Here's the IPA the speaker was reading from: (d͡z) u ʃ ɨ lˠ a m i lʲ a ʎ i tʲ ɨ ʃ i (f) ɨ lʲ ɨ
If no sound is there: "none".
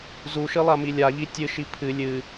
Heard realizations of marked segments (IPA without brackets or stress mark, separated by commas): z, pʰ